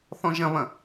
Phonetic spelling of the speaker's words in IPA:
θ ɔ̃ ʒ ɐ̃ β ɐ̃

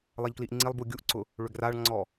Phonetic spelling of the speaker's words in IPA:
lˠ ɛ ʎ k l i ʔ ŋ͡ǀ i lˠ b u ɡʲ u ʔ ǀ ʊ | ɭ ʏ ɡ r a ɭ ŋ͡ǀ ɔ

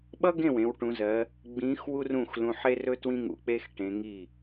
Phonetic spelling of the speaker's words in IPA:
ɓ ʌ˥ ɡ ẽ˥˩ w ẽ˨˦ w ʈ ũ˨˦ z ɜ˨˦ | ɡ͡b ĩ˨˦ x w u˥ r ũ˥˩ x l ũ˨˦ ħ e˥ r ɵ˥ t w ĩ˥ ŋ ṵ˨˦ k͡p e˥ x ʈ ẽ˨˦ ŋ i˥˩

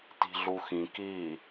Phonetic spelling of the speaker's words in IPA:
t i̤ ɮ u x ĩ k i

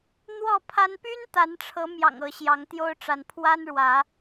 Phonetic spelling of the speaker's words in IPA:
n̪ w ɔ˥˨ pʰ a˦ n p y˦ n t̪ a˨˦ n ʈ͡ʂʰ ɤ˨˦ m j ɑ̰˨˩ ŋ ɤ˨˦ ɕ j ɑ˨˦ ŋ t̪ j o˦ ʊ̯ ʈ͡ʂ a˨˦ n pʰ w a˦ n ɻ w ä˨˦

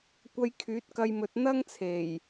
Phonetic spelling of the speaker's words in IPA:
kʷ ɐ˧ j kʰ yː˨˥ t̚ k ɐ˧ j m ɵ˨ t̚ n̪ ɐ˥ ŋ t͡sʰ e˨˩ j

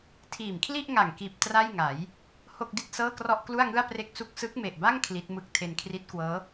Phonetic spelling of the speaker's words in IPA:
tʰ iː˨˩ m kʰ l i˥˩ ʔ ŋ a˨˩ ŋ k iː˨˩ p̚ t r a˥˩ j ŋ a˩˦ j | h o˥˩ k̚ d i˥˩ t̚ s ɤː˥˩ k r ɔ˥˩ ʔ k l u˥˩ a̯ ŋ ɯ˥˩ a̯ p r e˥˩ k̚ s u˥˩ k̚ s ɯ˦˥ k̚ m e˨˩ ʔ b a˥˩ ŋ kʰ l i˦˥ t̚ m ɯ˥˩ k̚ tʰ e˧ n kʰ r i˦˥ t̚ k w ɤː˦˥

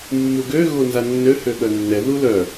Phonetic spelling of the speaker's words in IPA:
mː u ɡ ø ɣ o n z a nː ø h ø ɠ œ nː ɛ ð u l œ

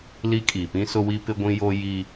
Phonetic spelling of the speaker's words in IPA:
l i˦ kʼ i˨ p ĩ˦ s ʊ˦ w i˦ p ɪ˦ ɡʷ ĩ˦ j o˦ j i˦

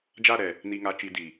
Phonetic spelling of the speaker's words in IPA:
d͡ʒ a˦˨ ɾ ɛ˨ | n i˨ ŋ a˨ t͡ʃ i˨ d i˨

